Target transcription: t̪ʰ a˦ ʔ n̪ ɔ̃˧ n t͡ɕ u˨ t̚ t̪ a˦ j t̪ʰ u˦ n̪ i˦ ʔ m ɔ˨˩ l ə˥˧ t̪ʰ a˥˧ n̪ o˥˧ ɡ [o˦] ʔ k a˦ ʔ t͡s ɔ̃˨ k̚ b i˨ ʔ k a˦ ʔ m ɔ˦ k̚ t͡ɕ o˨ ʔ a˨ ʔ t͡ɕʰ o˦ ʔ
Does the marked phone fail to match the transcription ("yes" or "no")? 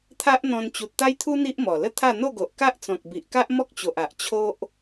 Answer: yes